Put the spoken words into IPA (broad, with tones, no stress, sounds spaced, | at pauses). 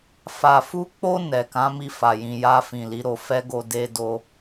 f a˨ f u˧ k͡p o˧ n ɛ˨ k ã˨˦ m i˧ f a˨ j ĩ˨ j a˧ f ĩ˨ l i˨˦ ɾ o˧ f ɛ˦ ɡ o˧ d e˦ d o˦